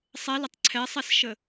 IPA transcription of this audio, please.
sˤ ɛ l ə tˤ ǀʰ ɛ sˤ ɛ s ʃ ə

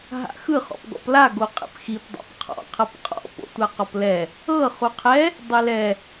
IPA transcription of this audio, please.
ɦ a̰ x ɯ χ ɔ̰ p ɡ ɔ̰ p l a ɡ o qʼ ḛ p x i p dˤ a̰ p qʰ ɔ̰ qʰ ɤ p qʼ ɔ̰ p o̰ tʷ a q ɔ p l ɛ | ɤ χ u qʰ ɛ | dˤ e l ɛ

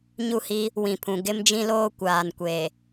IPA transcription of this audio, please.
ɲ u˦˨ h i˦ | w ĩ˨ pʰ ũ˨ ɡ ɪ˦ m d͡ʒ ĩ˦ l oː˦ kʷ aː˨ n kʷ e˨

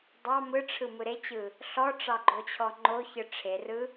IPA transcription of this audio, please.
dˤ ɑ m ɯ ʈ͡ʂʰ ɯ m ɯ ɾ e t͡ɕ ɯ | ɬ ɔ ʈ͡ʂ ɑ ɡ͡ǃ o t͡ɕʰ ɔ ŋ͡ǃ o ç ɯ ʈ͡ʂʰ e r ɯ

